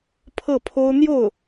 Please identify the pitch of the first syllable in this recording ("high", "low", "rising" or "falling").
falling